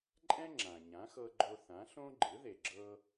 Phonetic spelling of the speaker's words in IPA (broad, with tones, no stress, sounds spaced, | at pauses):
ǃʼ ɛ̃˥ ŋ͡ǁ ã˩ ɲ ã˩˥ x ɤ˧ ɡ͡ǃ o˧ θ ã˩˥ ɬ õ˥ ɡ͡ǃ ɯ˩˥ ð e˩ ɡ͡ǁ ɤ˧